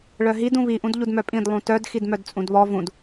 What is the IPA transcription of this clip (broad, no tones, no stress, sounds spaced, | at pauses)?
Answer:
ɭ œ ɦ i d ũ β i ʔ ũ d ʎ u d m œ pʼ ĩ d lˠ ũ t œ d x i d m œ d t͡sʼ ũ d β ɔ v ũ d